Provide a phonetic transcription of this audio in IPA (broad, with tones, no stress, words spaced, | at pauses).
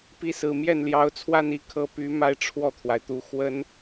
pi˧˥sɹ̩˨˩ mjɛ˥˩nljɑ˧˥ʊ̯t͡sʰwa˥˧n i˥˩kʰɤ˧˥ py˧˥ ma˥˧ɪ̯ʈ͡ʂʰwɔ˥˩t̪ʰwa˩ɪ̯t̪u˧˥ xwə˥n